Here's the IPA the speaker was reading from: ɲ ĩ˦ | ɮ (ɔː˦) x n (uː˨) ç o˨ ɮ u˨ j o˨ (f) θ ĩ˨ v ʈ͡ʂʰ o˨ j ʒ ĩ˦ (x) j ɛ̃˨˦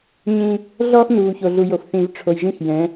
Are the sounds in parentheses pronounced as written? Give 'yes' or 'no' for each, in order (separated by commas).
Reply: yes, yes, yes, yes